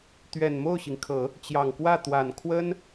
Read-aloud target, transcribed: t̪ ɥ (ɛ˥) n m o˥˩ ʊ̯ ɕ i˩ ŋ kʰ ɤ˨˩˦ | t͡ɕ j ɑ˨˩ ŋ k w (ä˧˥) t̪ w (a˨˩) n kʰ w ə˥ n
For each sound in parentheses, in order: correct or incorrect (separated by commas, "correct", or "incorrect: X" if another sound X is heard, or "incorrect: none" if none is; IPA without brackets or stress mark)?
incorrect: ɛ˨˩, incorrect: ä˥˩, correct